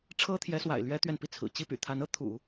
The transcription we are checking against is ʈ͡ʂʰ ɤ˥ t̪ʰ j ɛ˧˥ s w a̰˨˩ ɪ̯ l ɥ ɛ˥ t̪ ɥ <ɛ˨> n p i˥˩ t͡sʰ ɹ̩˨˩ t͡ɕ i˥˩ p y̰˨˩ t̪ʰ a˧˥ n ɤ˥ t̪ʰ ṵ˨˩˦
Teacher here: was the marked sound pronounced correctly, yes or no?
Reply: yes